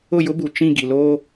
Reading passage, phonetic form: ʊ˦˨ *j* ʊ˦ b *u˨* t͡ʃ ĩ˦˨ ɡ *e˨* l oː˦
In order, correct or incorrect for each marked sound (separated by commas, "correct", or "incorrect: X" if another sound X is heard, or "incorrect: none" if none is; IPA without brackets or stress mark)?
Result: correct, correct, incorrect: i˨